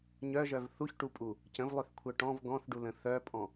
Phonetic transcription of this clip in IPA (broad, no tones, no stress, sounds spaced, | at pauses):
ɲ œ ʒ œ v θ u ç ʈ u pʼ u | c ə̃ v lˠ ø θ kʷʰ œ ʈ ɔ̃ v ɡ ɔ̃ θ ɖ u l ə̃ θ œ pʼ ɔ̃